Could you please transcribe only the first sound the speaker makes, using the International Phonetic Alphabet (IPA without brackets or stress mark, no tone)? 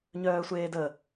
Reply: ɲ